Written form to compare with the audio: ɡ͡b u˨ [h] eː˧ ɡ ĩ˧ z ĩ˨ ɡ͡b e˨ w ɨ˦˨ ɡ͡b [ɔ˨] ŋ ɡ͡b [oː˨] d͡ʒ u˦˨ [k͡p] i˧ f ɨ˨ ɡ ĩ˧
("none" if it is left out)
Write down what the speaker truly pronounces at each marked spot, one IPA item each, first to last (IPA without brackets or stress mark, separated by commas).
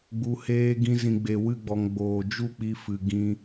h, ɔ˨, oː˨, k͡p